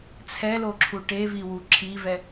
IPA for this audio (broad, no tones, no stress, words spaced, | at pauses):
t͡sʰɛloǁʰu ʈeviwu ǁʰivɛ